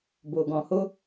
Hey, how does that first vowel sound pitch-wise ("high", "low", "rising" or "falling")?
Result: low